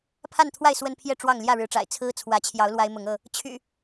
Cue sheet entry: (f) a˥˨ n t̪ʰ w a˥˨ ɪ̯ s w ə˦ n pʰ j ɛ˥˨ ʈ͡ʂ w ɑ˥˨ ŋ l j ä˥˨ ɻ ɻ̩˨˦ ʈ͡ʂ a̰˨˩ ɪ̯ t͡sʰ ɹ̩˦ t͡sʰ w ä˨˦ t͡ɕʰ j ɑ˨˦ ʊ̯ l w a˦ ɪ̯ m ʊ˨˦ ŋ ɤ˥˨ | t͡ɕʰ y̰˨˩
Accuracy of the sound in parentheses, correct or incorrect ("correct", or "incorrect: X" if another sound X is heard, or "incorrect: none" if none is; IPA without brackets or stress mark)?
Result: incorrect: pʰ